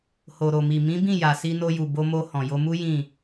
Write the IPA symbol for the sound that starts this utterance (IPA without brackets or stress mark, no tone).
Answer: h